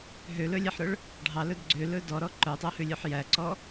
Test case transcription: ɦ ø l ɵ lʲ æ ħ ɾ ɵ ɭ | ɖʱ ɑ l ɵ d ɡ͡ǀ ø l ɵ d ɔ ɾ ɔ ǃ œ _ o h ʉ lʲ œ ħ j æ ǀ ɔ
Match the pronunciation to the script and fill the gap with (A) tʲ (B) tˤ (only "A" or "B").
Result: B